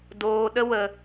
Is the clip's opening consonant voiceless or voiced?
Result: voiced